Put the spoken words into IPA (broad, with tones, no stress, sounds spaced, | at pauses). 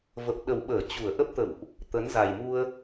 v ə˨˩ p̚ ɗ ə˨˩ w ɓ əː˧˩ t͡ɕ u˧˩ ə̯ ʔ ə˦˥ p̚ t̪ ə̰˧˨ w ʔ | t̪ ə˨˦ n z a˨˩ j m u˧ ə̯